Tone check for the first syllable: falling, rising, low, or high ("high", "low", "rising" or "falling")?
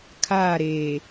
falling